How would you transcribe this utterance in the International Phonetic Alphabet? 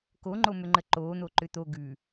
koŋ͡ǃomʏŋ͡ǃə ǃoːn̪oǃʏ t̪o ɡʉ

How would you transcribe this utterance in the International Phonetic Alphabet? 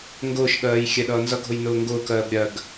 ŋɡʊːʃɠɜːj xʲɛɗʌːnzʌɡʱʊj nʊːŋɡʊːkɜːb ɾʲɜɡ

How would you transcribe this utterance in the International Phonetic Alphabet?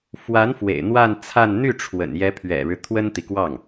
fwa˧˥n fwḛ˨˩ɪ̯ n̪wa˥˧nt͡sʰa˥˧n n̪y˥˩ʈ͡ʂʰwə̰˨˩n jɛ˧˥pʰɥɛ̰˨˩ɻɻ̩˦ t̪ʰwə˥nt̪i˨kwɑ˥˩ŋ

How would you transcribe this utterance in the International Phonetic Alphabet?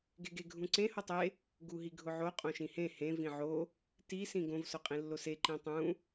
ɡeɡeɡʱũǀẽ hotˤe | ɡuɦiɡʱʊʕo qʼõʃĩhẽ hẽ vĩʕo | ti sĩɡõv sʊqʼĩlːose ǃĩtˤũ

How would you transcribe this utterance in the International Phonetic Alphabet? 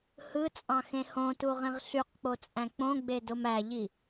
hɯt͡sʼɑ̃ xẽhõtuʁĩʁ ɬyqk͡pot͡sʼæ̃ k͡põɡ͡be domæʎi

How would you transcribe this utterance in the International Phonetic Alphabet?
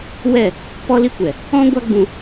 wɛ˦˨ | pɔ˧li˧kʷɛ˨ | ɔ̃˦ ɡʷa˦ɡ͡bũ˧

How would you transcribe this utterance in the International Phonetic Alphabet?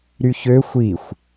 ɾyçø xʷixʷ

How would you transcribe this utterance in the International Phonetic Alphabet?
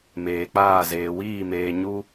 meː˨k͡paː˦˨ zeː˨wiː˦˨meː˨ ɲu˦

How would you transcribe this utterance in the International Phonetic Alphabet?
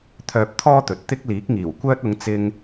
t̪ʰœː˧p̚t̪ʰɔː˥t̪ɵ˨t̚t̪ɪ˥k̚ liː˨˥k̚ŋiː˨˩wkʷœː˥t̚ ʊ˨˧ŋ t͡sɪ˧ŋ

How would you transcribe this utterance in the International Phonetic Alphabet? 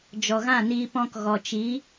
d͡ʒɔ˨ɣã˦˨niː˧p ɔ̃˧kɣɔ˨t͡ʃi˨˦

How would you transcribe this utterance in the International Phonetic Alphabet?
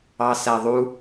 ɑsæðˤu

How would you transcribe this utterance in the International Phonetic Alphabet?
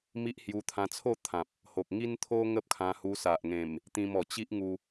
mi˦ʔ hju˧t̪ʰã˧t͡sʰo˥˧ t̪ʰã˨p̚ | ho˨k̚ ŋi˦nt̪ʰo˦ ŋə˦p̚kʰã˧hu˧ sa˨ʔŋẽ˨˩m | t̪ĩ˧mɔ˨˩t͡ɕi˦ʔ ŋu˧

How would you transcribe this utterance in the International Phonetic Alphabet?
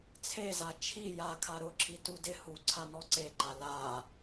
t͡sʰeza t͡ʃʰi jakʰa ɾʊǁʰi tudɪ hu ǀʰanɔǀeǃa la

